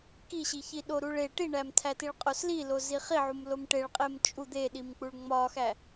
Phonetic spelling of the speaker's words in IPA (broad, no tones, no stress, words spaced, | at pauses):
kiɕiçi ɗoɾuɭe ʈiɳæmtʰætiɭ qʼoslilozi χiʕum lomʈeɭqʼem t͡ʃʼu d̪eɗimk͡puɭ ŋ͡mɒxæ